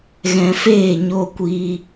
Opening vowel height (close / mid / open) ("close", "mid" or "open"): mid